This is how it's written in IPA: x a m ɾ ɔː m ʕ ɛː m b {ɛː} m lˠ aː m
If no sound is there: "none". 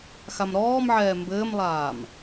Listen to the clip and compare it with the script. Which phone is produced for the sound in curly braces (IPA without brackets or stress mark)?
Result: ɘː